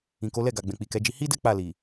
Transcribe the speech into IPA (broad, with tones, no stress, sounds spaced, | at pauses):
ĩ˨ k o˨˦ l ɛ˦˨ ɡ a˨ ɡ͡b ɛ̃˨ k͡p i˨ k ɛ˨˦ d͡ʒ i˧ h i˦ d ɛ˦ k͡p a˦˨ l i˨